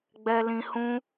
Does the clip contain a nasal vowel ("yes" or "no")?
yes